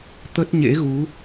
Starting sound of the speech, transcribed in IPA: t̪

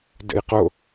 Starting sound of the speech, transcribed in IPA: d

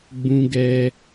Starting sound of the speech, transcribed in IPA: ɡ͡b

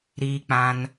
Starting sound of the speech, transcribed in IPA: ɾ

